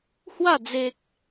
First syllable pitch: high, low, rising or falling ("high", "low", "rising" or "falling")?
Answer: falling